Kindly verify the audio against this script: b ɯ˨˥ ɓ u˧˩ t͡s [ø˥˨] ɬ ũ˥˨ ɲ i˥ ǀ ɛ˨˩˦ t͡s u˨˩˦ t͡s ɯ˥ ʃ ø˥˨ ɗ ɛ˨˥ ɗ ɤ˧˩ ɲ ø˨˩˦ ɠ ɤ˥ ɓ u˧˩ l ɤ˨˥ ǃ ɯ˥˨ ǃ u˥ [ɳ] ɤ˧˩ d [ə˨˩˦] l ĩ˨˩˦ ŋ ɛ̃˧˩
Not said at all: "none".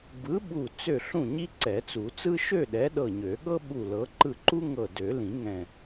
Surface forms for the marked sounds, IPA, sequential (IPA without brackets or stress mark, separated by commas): ø˥˨, ŋ, ø˨˩˦